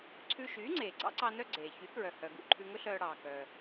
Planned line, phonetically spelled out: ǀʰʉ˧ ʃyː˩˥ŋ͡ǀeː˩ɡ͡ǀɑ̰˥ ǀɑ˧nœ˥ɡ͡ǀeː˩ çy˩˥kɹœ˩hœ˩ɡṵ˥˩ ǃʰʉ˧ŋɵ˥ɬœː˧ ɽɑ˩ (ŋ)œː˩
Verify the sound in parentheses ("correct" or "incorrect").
incorrect